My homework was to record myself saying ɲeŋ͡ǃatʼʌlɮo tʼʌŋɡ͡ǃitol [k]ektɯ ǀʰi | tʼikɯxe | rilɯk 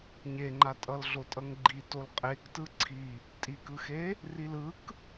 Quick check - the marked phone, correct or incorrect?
incorrect